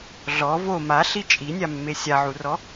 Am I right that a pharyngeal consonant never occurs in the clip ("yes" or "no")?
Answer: no